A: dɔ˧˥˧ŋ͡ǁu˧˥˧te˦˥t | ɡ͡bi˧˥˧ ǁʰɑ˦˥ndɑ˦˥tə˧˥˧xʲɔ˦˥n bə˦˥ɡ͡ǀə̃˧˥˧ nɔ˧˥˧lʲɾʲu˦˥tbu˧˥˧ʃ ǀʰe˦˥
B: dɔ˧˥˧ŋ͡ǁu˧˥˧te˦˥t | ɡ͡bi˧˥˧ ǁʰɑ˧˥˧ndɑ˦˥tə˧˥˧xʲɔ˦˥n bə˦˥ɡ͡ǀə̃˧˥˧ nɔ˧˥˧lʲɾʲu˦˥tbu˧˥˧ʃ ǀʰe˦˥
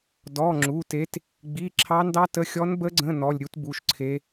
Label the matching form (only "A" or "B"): A